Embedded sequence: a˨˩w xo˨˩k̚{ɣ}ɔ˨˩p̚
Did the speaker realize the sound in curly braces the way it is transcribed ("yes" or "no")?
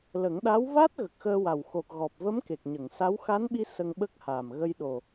yes